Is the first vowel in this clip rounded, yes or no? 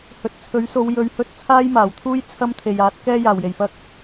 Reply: yes